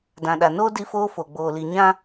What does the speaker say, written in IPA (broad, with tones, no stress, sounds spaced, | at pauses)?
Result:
d ã˨ ɗ a˨ n oː˦ d i˦ f oː˦ f o˨ ɡ͡b oː˨ l i˨ ɲ ã˦